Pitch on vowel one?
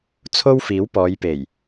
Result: high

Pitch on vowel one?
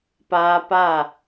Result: high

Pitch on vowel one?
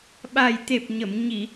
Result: low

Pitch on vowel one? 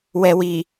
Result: low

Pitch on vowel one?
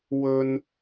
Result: high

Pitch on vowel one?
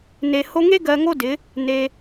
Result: low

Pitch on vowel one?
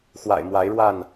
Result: low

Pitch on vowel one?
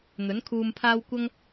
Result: rising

